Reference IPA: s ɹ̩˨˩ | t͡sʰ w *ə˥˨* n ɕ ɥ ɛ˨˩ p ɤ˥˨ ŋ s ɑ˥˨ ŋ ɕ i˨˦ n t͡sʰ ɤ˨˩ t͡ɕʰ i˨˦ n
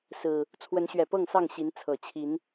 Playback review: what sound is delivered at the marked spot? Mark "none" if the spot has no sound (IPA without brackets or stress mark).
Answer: ə˨˦